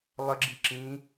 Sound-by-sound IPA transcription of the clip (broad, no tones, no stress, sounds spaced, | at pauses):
lˠ ə ɡ͡ǁ i ǁ ĩ